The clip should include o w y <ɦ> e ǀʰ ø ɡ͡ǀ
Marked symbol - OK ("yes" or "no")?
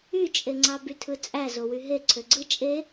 yes